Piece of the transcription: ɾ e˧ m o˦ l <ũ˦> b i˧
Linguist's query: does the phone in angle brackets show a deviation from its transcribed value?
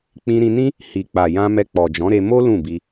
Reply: yes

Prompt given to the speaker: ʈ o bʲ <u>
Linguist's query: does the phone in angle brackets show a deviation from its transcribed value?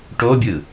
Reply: yes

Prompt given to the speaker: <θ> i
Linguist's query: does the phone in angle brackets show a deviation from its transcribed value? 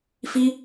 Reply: yes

